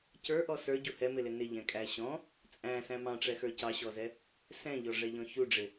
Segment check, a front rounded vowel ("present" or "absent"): absent